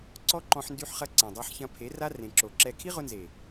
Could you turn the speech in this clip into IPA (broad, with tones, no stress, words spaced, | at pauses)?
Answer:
ǀɔ˦ǃɔ̃˧ħndy˧ħχɐ˧ ǀɛ̃˨dˤa˧ħçɐ̃˧pʰe˨˦ ra˦rẽ˨ǁo˨ǁɛ˧ kʰi˦ʁʊ˧nze˨